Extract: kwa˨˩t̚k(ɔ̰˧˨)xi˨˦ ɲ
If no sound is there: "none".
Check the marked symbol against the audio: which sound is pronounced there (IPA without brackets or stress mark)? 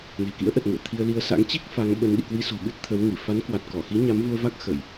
ɔ˧˩